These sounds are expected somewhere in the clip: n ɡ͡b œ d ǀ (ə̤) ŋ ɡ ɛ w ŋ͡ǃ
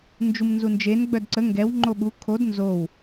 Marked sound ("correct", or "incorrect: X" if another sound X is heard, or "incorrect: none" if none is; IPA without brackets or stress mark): incorrect: ə